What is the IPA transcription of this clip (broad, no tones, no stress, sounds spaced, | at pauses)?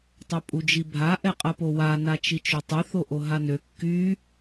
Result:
tˤ œ pʼ u d͡ʒ i bʱ a ʔ ɛ qʼ ɐ p o w a n a t͡ʃ i t͡ʃ ø tˤ y θ o ʔ o ɦ a n ø kː y